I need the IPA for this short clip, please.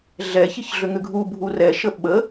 ɮ ɛ ç i ç ɮ ʏ ŋ ʏ ɡʱ u bʱ u r ɛ ʃ ə ɓ ə

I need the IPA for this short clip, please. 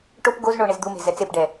ʈ o p ɡ o z ɳ o ɳ e z d̪ u m e̤ z ɛ t͡s e p ɖ ɛ

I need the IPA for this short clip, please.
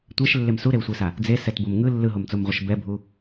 tʷ ɛ ʃ lː e m s u ɾ e w sʷ i s a | d͡z e s ɛ t b o m ŋ ɯ lː ɯ ɦ o m t͡s o m ʁʷ ʌ ʃ b ɛ bʱ u

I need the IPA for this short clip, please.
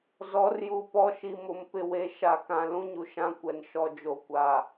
z ɔ˨˦ r j u˨ p ɔ˦ ʃ i˨ m ʊ˨ m p ɪ˨ w e˨ ʃ a˨ k ã˨ l ũ˦ ɲ u˨ ʃ ã˦ kʷ ɛ˨ n ʃ ɔ˨ d͡ʒ o˨ kʷ a˨

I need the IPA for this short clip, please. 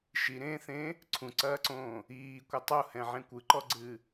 ʃ i ɾ ẽː θ ẽː | ǀʰ ũ ǀ ɐː ǀ õː | iː kʷ ɐ tˤ u h ɛ̃ ʕ ẽ kʷ ɨ ǃ ɔ ɡ͡ǀ ɨː

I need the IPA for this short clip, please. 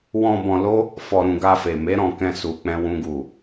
w ɔ̃˧ b ɔ̃˧ l o˦ | f ɔ˧ ɾ ũ˧ ɡ a˧ f e˨ m e˨˦ ɾ ɔ̃˧ k ɛ̃˧ s u˧ k͡p ɛ̃˦ w ũ˦ ɡ u˦˨

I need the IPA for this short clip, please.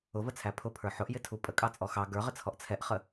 ʊ v ə t͡sʰ æ pʰ ʊ pʰ ə˞ ħ ʊ ʔ j ɪ tʰ u pʼ ə kʼ ɑ t͡sʼ ɔ x ɑ ɡ ə˞ ʁ ɪ t͡sʰ ɔ ʔ t͡sʰ ɛ ʔ χ ə

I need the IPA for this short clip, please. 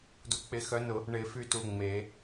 d u˨˦ k͡p ɪ˨˦ x œ˨˦ n ʊ˨˩˦ | ɳ ɪ˨˩˦ f y˨˦ t u˩˧˩ ŋ͡m e˨˩˦

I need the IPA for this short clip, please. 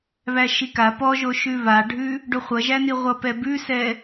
β æ ʃ i k a p ɔ ʒ o ʃ ʉ β a ɖʱ ʉ | ɖ o χʷ ʌ ʒ æ n i ʁʷ ʌ p ɛ b ʉ s ɛ

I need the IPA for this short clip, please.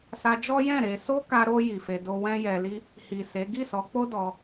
s a˧ d͡ʒ ɔ˦ j ɛ̃˦˨ ɾ e˧ s o˦ k a˧ ɾ o˧ j i˨ f e˧ d o˦ w ɛ̃˦ j ɛ˧ l i˦ | h i˨ s e˨˦ ɡ i˦˨ s ɔ˨˦ k͡p o˦ d ɔ˧

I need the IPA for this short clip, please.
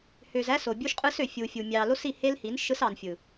h ø˨ z æ˦ s o˨ bʲ u˦ ʃ qʼ ɯ˦ s ø˨ fʲ u˨ fʲ u˨ mʲ ɑ˨ l o˦ s i˦˨ h e˦ l h i˨˦ n ʃ ɯ˦ s ɑ˨ n fʲ ɯ˨

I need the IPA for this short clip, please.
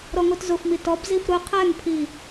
ɾ ɔ ŋ o t z ʊ f m i t ɔ b z i f ɾ ʊ qʰ ɛ ŋ pʰ i

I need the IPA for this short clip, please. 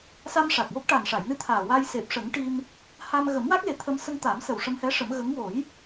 s a˧ m ʂ a˨˩ k̚ w o˦˥ k̚ ʈ a˨˩ n ʂ a˨˩˨ j n ɨ˧ t̪ʰ aː˨˩ w a˧ j s e˨˩ p̚ ʂ ə˨˩˦ ŋ ʈ i˧ m | h a˧ m ɣ ə˨˩˦ m w a˦˥ k̚ l e˨˩˦ t̪ʰ ə˧ m s ə˧ ŋ t̪ a˨˩˦ m s ə˨˩ w ʂ ə˧ m h ɛ˧˥ ʂ ə˨˩˦ m ɣ ə˧˥ ŋ w o˨˩˦ j

